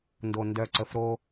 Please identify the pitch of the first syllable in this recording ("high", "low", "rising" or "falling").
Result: low